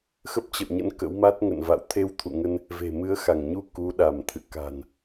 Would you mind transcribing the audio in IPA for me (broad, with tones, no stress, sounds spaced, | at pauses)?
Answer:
x ə˦˥ p̚ t͡ɕ ə̰˧˨ w ɲ ə̰˧˥ n k ə̰˧˥ w m a˦˥ t̚ ŋ ə̰˧˨ n v a̰˧˨ w t̪ʰ e˧ w t̪ʰ ṵ˧˨ ŋ ə˧ n | v e̤˨˩ m ɨ˨˦ ə̯ x a˧˩ ŋ ɲ u˧ k u˨˦ ɗ a˧˩ m t̪ʰ ɨ̰˧˨ k a̤˨˩ n